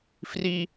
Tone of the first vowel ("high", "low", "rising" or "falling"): high